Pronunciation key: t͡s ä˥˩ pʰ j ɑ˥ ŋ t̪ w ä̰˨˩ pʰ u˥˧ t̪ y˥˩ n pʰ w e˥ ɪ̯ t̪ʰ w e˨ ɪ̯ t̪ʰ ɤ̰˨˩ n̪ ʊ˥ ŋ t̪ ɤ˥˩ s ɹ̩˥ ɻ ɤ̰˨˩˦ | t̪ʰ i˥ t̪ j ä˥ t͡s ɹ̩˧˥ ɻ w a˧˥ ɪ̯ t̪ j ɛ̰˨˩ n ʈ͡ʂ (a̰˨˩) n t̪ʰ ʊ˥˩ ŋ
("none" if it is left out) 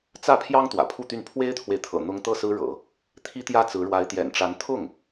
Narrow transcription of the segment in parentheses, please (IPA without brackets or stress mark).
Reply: a˧˥